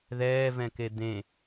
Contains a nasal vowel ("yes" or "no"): yes